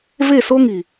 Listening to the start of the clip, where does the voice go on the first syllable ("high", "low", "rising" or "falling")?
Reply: falling